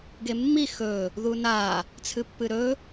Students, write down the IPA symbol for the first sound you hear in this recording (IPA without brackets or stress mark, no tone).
ɡ